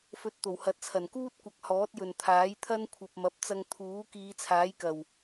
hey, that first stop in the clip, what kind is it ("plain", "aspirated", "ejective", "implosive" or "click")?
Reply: plain